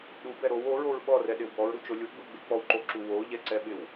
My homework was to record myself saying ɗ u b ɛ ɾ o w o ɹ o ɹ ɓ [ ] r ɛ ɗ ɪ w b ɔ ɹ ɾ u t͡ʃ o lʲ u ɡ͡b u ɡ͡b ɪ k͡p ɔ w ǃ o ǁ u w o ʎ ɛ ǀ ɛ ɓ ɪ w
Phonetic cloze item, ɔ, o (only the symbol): ɔ